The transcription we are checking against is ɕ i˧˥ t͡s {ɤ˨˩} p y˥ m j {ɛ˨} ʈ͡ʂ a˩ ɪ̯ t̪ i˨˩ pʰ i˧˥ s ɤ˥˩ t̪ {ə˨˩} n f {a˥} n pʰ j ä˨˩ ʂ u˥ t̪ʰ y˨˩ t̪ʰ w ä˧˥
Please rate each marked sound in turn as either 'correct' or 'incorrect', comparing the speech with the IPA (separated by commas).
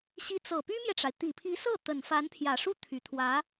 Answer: correct, correct, correct, incorrect